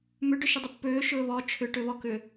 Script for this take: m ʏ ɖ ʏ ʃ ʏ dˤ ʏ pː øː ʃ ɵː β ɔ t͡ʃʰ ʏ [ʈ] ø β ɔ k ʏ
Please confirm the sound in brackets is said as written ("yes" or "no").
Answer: yes